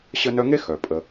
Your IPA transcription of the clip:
ɕ ə˦ n œ˦ ŋ e˥ x œ˩ pʼ ə˨

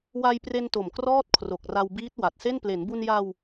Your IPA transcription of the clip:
w a˧ j p r e˧ n t o˨˩ m k r ɔː˥˩ t̚ kʰ r o˨˩ k̚ r a˧ w b iː˦˥ t̚ w a˨˩ t̚ s e˥˩ n p l e˩˦ n b u˧ n j a˧ w

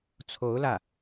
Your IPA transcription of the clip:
t͡sʰ o˧˥ ʊ̯ l ä˥˩

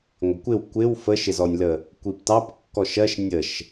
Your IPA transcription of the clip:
ŋʷ ɪ kʷ ɪ w kʷ ɪ w f ə ʃ ɪ z ɔ nʲ l ə | kʷ i p t ɑ p kː ɔ ʃ ɜ ʃ nʲ ə ʃ

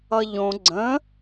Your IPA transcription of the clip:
ʌ ʎ õ ɡ͡ǀ ə̃

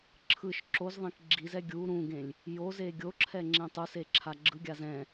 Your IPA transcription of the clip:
ǁʰ ɯ ʃ ǁ o z ðˤ ẽ k ɡ͡ǁ i z ɛ ɡʲ u ɾ ũ ɡ ẽ lʲ | j o z e ɡʲ o ǁʰ ɛ ŋ͡ǁ ẽ tˤ u s e ǁʰ a ɡ͡ǁ ɯ ɡʲ a z ɛ̃

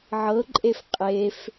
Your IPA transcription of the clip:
ʕ ɤ ǃʼ e f qʼ e f

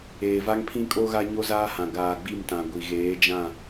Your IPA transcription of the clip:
eː˨ v a˦ ŋ pʰ ĩ˦ kʼ o˦ ɣ a˦ ɲ o˦ z aː˦ h ã˨ ɡ aː˨ ɡ͡b i˦˨ m t ã˨ ɡʷ i˨ ɣ eː˨˦ d͡ʒ ã˦˨

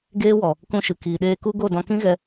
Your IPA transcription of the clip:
ɡ eː˦ w ɔ˨ | k ũ˧ ʃ ɨ˨ k iː˨ ɗ eː˧ k u˦ ɡ o˦˨ d ɔ̃˧ k ĩ˦ ɣ ɛ˧

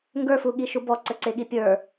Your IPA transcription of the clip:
ŋ ɡ ə˞ f u ɠ i ʃ u b ɔ ǀ ə ǀ e ɠ i pʲ ə˞

